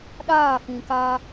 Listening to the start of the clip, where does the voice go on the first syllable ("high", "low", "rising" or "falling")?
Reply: falling